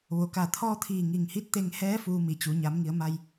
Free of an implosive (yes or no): yes